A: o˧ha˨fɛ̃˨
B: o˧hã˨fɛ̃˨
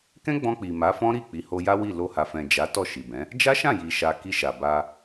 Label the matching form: A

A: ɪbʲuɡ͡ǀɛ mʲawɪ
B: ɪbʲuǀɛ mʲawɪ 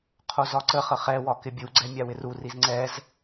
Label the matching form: A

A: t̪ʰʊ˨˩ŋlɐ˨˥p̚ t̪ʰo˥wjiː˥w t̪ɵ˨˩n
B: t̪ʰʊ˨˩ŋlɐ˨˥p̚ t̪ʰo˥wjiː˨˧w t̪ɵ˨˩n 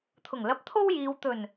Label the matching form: B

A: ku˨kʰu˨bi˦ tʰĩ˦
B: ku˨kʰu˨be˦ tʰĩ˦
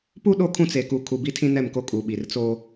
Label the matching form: A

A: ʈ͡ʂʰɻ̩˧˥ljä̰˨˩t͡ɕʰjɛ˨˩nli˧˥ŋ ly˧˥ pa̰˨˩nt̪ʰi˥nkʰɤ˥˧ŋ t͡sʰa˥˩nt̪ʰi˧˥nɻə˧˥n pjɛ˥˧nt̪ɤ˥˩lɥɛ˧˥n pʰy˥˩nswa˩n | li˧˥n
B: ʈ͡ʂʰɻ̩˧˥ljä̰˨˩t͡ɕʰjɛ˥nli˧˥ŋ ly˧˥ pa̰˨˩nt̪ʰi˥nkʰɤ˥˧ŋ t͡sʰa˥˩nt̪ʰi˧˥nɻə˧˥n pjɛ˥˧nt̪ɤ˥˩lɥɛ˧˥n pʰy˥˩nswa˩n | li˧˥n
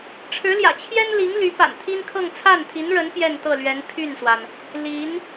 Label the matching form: B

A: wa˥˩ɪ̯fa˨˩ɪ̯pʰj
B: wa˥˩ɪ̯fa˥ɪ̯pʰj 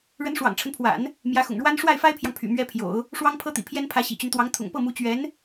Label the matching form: B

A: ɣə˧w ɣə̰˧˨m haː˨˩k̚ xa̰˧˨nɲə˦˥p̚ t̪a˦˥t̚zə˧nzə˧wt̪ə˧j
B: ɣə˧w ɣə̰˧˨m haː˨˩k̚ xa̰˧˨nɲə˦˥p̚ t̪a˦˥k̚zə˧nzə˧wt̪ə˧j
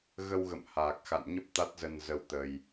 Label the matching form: A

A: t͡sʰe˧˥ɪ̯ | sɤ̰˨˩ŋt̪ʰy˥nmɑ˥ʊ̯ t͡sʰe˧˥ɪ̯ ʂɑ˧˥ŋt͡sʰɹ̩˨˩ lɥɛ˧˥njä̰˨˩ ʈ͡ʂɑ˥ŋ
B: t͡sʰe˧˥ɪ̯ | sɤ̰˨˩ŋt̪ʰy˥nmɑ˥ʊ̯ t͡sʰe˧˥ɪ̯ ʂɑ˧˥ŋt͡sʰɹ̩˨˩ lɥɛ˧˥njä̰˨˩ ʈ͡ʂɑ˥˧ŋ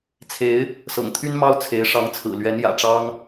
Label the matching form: A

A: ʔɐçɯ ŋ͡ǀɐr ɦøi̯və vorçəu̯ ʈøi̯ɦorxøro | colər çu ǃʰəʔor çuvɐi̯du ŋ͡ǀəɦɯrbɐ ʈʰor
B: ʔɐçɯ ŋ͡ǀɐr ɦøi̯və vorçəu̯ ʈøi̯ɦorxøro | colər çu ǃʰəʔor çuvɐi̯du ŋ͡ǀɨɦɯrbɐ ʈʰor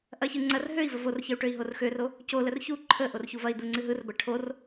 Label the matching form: B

